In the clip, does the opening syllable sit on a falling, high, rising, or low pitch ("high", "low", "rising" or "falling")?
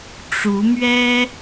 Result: rising